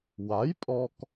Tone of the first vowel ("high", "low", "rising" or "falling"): rising